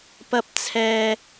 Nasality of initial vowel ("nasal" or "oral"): oral